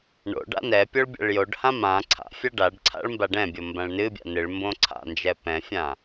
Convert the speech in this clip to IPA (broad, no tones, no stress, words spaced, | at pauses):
ɳo̰ ɖa̰nɛpʲoɭ bʲa̰ɭjoɖhã mã ǀʰa̰fʲa ɖaɖǀʰa̰ɭ mbaɖɛ̃bʲo mbãɭnɨbʲa̰ nɨɭ mbõǀʰa̰nd͡ʒɛ pɛ̃fʲã